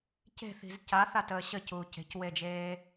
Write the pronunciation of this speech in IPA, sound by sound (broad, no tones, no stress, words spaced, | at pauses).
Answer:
ce̤θi̤z caθatəː ɕəcuːc e̤cwed͡ʒeː